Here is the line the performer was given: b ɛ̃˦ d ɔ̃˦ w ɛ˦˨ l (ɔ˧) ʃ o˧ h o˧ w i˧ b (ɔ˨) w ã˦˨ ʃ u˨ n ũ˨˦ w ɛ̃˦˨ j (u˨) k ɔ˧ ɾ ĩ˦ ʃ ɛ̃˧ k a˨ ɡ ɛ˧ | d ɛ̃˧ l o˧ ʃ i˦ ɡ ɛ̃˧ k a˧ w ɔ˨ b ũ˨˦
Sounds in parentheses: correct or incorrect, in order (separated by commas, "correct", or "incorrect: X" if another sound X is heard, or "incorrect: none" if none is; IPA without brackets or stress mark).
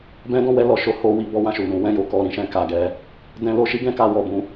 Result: correct, incorrect: ɔ˦, incorrect: o˨